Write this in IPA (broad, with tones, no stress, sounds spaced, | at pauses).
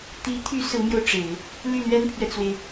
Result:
t̪ i˧˥ t̪ʰ y˧˥ s ɹ̩˧˥ m j o˧ ʊ̯ ʈ͡ʂ e˨˩˦ ɪ̯ | l y˥˩ l ɥ ɛ˥ n pʰ ɥ ɛ˨ t͡s w e˩ ɪ̯